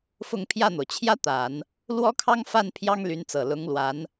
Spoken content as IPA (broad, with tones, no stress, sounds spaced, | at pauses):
f ʊ˥˧ ŋ pʰ j ä˥˩ n̪ o˩ ʊ̯ t͡ɕʰ j ä˥ t̪ a˨˩˦ n | l w ɔ˥ kʰ ɑ˥ ŋ f a˥˩ n pʰ j ɑ˥ ŋ l y˧˥ n t͡s ɤ˨˩ l ʊ˧˥ ŋ l w a˧˥ n